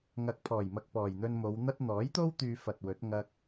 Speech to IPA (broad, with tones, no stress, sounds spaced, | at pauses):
ŋ ɐ˨ k̚ pʰ ɔː˨˩ j m ɐ˨ k̚ p ɔː˨˩ j n̪ ɵ˧ n m o˨˧ w n̪ ɐ˥ t̚ n̪ ɔː˨˥ j t̪ o˥ w t̪ yː˧ f ɐ˨ t̚ w ɵ˨˥ t̚ ŋ ɐ˧ k̚